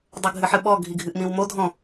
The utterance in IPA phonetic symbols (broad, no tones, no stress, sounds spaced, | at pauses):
dˤ ʊ ɡʱ ɨ ħ ɨ ɓ ɔ ɡʱ i ɡʱ ɨ ʔ m ĩ w m o dʱ ɔ̃